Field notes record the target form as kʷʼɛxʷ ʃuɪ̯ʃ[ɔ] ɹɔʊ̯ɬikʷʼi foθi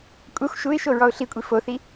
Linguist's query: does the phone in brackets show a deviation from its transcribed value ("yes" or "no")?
yes